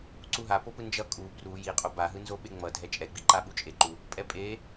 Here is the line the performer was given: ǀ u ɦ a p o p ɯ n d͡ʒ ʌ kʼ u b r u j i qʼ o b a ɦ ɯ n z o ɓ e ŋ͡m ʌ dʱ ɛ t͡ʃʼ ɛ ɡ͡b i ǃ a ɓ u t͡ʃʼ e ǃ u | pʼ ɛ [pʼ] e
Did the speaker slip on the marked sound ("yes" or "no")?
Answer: no